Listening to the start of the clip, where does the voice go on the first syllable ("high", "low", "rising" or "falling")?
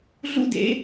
high